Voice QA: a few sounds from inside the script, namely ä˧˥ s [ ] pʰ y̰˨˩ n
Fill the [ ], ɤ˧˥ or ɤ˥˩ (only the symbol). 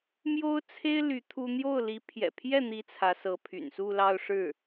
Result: ɤ˧˥